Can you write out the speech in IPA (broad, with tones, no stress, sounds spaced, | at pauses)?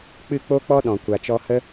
k͡p ɨ˦˨ k͡p o˦ k͡p ɔ˦ ɗ ɔ̃˨ kʷ a˨ t͡ʃ ɔ˧ h ə˦